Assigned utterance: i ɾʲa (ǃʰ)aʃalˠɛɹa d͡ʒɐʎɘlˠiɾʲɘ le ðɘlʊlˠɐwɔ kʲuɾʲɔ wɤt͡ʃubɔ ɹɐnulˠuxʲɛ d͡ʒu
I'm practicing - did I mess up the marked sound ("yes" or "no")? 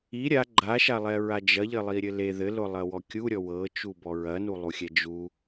yes